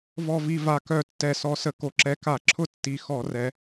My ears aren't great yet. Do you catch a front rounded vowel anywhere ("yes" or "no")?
yes